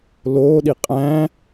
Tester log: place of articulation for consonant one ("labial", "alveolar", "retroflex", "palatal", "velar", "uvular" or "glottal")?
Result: alveolar